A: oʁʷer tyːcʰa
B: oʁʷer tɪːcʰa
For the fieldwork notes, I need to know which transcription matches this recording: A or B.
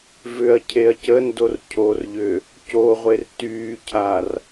A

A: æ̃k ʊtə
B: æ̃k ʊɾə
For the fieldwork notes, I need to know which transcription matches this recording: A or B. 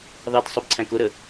B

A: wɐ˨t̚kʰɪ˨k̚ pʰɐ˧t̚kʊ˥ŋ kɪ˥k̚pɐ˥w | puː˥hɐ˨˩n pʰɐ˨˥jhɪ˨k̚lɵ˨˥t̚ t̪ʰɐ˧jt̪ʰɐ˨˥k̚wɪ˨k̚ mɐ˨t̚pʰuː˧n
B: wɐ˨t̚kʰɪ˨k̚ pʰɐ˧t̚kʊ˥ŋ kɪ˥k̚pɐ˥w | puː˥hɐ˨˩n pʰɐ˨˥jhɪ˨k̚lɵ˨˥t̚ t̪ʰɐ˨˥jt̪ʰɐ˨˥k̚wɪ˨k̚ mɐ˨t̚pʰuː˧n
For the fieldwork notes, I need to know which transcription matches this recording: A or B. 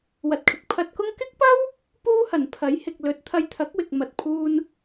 A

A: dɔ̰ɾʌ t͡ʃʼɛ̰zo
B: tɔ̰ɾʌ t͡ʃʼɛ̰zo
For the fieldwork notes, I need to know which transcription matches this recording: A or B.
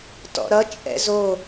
B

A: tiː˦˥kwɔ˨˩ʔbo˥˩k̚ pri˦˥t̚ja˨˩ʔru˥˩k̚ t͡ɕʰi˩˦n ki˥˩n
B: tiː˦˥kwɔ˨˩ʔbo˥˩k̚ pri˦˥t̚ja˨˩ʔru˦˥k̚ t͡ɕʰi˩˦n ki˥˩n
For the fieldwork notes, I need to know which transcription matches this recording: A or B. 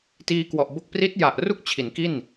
A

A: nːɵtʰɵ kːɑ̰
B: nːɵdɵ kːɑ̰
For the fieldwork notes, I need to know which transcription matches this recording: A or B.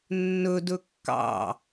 B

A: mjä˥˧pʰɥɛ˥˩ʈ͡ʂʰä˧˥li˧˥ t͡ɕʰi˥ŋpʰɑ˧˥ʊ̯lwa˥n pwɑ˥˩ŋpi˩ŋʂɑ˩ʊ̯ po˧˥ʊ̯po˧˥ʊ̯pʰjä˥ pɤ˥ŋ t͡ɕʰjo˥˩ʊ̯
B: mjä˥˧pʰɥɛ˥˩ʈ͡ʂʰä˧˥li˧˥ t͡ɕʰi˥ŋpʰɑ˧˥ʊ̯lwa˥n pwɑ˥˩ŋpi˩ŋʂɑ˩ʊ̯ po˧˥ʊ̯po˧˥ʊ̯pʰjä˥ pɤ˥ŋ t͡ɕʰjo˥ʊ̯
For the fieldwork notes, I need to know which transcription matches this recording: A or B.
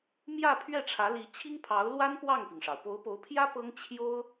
B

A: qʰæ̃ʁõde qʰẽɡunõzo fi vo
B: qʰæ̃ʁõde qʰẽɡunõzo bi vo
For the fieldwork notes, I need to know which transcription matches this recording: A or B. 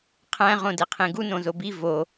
B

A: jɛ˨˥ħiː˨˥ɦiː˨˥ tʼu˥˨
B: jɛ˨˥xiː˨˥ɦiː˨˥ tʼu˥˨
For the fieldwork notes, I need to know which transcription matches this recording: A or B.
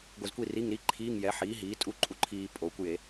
A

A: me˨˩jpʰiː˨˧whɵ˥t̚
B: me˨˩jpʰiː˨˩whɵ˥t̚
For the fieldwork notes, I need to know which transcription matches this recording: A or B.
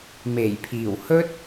B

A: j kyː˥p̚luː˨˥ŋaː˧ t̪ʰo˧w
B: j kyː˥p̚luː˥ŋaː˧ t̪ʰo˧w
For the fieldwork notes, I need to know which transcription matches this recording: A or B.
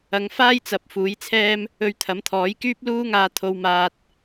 B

